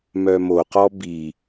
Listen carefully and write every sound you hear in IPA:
mœmoqɔ bi

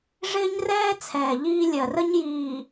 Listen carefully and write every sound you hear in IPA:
ʐɪː˦ɲrɛː˦t͡sʰɛː˨ ʎiː˦lʲɜ˨ rə˦ɲjiː˨

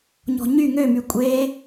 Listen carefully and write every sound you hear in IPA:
ɲɔ̤ɲy ŋø mykʷʼe

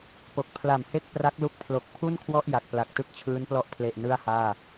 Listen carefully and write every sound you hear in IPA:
po˨˩k̚ pʰla˨˩mhe˥˩k̚pra˦˥k̚ lu˦˥k̚pʰlo˨˩k̚ pʰu˥˩nkʰwɔ˥˩ʔ ja˨˩k̚pla˨˩k̚ tɯ˥˩k̚t͡ɕʰɯː˦˥nplɔ˥˩ʔpʰle˨˩ʔ nɯ˥˩a̯haː˥˩

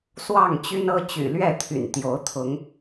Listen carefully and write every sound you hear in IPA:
swɑ˥˨ŋt͡ɕy˦nɤ˦ t͡ɕy̰˨˩lɥɛ˥˨t̪ʰy̰˨˩n t̪jo˨˦ʊ̯t̪ʰʊ˨˦ŋ

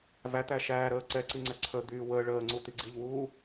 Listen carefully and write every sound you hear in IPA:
væt̪æ ʃæːɾəː ǀɛ ǀiŋ͡ǀɛǀʰəd̪yː wəː ɭəː ŋ͡ǀut̪iɡ͡ǀiʎwuː

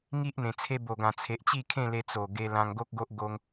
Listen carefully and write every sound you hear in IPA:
ŋi˦ʔn̪ẽ˨˩ t͡sʰe˧bo˨˩ɡã˨˩ t͡sʰe˨ʔt͡ɕi˥˧ kʰẽ˥˧le˧ t͡so˨˩ ɡe˧lã˧ŋɡo˦k̚ɡo˦ʔ ɡo˦ŋ

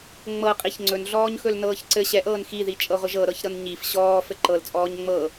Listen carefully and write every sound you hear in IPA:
ŋ͡mɤqʼiç ŋ͡ǀɵnɮɔːɲxɵl nɤːçǀɘ ɕɛʔɤːn xiðit͡ʃʼɤʁʷɘʒ ɤɾɤçɾɤn ɲif ɕɔː fɘǃɤlt͡sʼɔːɲ ŋ͡mɤ

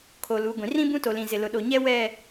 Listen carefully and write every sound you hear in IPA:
kʰoː˨luː˨˦ɡʷĩ˨ rĩ˦bũ˦to˨lĩ˨ zɪ˨lʊ˨ɗo˨ɲɛ˦ wɛ˦˨

